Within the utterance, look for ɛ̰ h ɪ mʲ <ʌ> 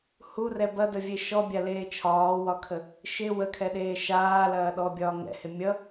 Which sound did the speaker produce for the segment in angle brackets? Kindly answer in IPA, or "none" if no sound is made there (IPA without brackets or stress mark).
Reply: ʌ